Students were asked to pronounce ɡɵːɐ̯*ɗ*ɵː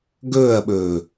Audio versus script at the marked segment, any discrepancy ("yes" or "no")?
yes